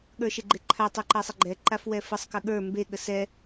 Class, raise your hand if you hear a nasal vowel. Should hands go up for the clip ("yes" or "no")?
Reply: no